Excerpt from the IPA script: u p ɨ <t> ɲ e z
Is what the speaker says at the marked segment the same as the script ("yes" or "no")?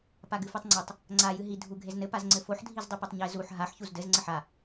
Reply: no